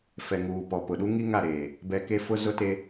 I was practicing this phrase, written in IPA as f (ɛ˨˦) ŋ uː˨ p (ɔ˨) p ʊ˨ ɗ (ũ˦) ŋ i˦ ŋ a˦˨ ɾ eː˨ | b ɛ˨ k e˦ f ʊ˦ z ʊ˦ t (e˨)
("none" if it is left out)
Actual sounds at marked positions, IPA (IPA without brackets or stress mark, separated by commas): ɛ˨, ɔ˨, u˦, e˦